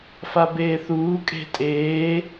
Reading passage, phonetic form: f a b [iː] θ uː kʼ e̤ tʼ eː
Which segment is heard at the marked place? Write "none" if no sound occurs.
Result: eː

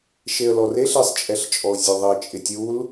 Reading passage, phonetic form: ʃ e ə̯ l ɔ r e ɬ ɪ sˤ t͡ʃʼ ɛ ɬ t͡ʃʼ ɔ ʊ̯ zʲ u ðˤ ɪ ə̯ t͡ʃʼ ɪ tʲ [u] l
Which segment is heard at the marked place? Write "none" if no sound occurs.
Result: u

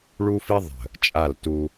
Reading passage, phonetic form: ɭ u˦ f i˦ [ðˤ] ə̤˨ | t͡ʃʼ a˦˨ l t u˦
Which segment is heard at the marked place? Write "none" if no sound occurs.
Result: ðˤ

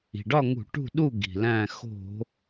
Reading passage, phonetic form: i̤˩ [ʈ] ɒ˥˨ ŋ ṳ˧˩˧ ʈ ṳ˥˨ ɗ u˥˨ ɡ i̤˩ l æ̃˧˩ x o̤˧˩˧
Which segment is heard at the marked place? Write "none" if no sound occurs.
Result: ɖ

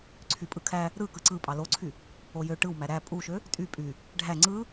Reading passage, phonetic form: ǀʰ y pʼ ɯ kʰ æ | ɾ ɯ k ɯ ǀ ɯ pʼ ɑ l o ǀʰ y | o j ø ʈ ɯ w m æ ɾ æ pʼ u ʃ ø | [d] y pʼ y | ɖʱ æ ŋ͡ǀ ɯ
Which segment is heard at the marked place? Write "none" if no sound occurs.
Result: tʼ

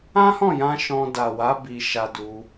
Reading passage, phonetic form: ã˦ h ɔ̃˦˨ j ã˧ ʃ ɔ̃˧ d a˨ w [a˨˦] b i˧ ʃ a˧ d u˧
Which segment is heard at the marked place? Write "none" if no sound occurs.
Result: a˨˦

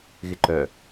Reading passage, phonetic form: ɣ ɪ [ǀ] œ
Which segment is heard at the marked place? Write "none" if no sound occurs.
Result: ǃ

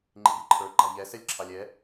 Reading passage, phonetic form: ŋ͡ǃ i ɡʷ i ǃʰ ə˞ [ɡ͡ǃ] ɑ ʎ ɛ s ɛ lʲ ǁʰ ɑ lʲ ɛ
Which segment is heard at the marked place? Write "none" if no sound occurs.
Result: ɡ͡ǃ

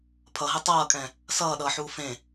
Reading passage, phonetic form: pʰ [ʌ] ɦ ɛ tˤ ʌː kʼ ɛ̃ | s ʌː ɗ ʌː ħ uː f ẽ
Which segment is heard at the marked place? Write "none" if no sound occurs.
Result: ʌ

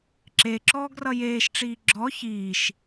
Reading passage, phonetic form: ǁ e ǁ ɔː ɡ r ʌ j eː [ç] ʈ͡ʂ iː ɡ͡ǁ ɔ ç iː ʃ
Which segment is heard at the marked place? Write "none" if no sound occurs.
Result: ʃ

